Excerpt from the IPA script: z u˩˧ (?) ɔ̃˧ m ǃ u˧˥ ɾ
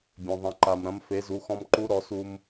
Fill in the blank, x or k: x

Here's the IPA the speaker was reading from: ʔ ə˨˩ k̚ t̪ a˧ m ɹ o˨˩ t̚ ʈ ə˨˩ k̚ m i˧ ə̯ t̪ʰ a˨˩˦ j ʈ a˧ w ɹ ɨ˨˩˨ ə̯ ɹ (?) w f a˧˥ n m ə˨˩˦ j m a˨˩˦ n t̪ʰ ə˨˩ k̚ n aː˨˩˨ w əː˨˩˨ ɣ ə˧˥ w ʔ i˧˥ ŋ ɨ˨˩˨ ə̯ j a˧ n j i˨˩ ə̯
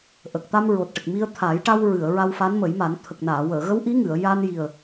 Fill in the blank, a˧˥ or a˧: a˧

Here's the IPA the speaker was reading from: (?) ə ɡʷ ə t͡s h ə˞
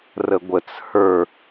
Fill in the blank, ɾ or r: r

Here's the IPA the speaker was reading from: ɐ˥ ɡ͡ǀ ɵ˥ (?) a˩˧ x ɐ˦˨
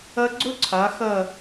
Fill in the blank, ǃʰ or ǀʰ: ǀʰ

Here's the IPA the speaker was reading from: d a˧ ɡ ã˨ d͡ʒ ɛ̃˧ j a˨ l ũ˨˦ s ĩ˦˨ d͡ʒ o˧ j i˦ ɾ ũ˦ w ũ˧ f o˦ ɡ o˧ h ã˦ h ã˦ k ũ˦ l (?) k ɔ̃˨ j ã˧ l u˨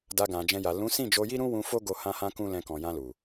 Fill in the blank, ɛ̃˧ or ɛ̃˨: ɛ̃˧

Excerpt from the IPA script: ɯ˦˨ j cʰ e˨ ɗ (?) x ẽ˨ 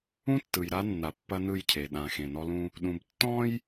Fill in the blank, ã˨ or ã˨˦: ã˨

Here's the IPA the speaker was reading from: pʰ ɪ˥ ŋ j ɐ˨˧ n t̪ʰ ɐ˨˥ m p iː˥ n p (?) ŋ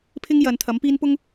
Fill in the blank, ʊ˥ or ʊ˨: ʊ˥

